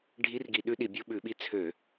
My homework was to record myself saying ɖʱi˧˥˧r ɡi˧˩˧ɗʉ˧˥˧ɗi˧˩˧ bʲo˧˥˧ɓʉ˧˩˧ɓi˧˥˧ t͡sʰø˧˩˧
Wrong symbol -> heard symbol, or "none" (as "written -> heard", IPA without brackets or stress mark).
none